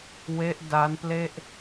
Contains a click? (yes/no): no